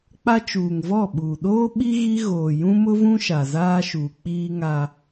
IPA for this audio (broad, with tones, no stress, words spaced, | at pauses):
k͡pa˦t͡ʃuː˨ŋvɔ˦˨ɓuː˨ ɗoː˦ɓi˦ ɣi˦ɣoː˨ jũ˦mʊ˦vũ˦ ʃa˨zaː˦ʃuː˨ k͡piː˦ŋa˦